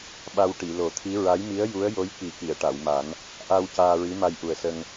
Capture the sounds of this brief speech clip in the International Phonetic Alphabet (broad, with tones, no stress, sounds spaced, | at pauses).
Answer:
ɓ a˧ w ʈ i˨˩˨ l o˨˩˦ t̪ʰ i˧˥ ɹ a˧˥ j m i˧˥ ə̯ j u˧˥ ə̯ j o˧˥ j k i˨˩˦ k i˨˩˨ ə̯ ʈ a˨˩˨ w m a˨˩˦ n | ʔ a˧ w c aː˧ ɹ i˧˥ m a˧ j ʔ u˨˩ ə̯ s ə˧ ŋ